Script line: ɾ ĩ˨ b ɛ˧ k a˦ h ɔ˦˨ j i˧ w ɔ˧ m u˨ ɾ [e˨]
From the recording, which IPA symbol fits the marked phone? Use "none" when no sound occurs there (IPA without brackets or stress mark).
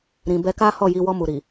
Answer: i˨